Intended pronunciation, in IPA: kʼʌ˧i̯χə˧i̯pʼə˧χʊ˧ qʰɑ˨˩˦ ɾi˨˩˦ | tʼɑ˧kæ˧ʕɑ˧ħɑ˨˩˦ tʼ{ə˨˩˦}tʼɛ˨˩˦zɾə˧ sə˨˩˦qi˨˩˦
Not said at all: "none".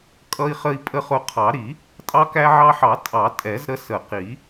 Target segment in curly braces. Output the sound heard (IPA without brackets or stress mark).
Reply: ɑ˨˩˦